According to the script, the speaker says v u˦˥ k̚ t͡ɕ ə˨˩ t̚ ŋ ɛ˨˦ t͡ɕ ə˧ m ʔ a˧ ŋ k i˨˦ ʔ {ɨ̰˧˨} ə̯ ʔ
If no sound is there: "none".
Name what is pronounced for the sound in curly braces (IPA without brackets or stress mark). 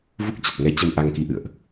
ɨ̰˧˨